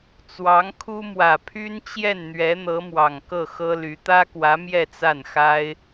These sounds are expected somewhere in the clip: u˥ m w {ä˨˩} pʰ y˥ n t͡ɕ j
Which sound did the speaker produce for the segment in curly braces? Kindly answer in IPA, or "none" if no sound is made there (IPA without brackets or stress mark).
ä˨˩